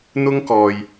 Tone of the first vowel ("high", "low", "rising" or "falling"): high